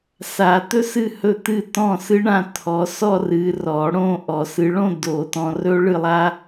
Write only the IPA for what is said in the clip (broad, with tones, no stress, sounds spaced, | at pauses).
s a˨˩˦ t̪ ɵ˥ s ɨ˥˩ h ɵ˥˩ t̪ ɨ˥˩ t ɔ̃˥˩ s ɨ˥ ɳ ã˥˧ t̪ʰ ɔ˨˦ s ɔ˥˧ r ɨ˨˦ r ɔ˨˩˦ ɽ õ˥˧ ʔ ɔ˨˩˦ s ɨ˨˦ ɭ õ˥˧ d o˨˩˦ t ɔ̃˨˦ r ɵ˥ ɭ ɨ˥˧ lˠ a˥